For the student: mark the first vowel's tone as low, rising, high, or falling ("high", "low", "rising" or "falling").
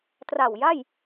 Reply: low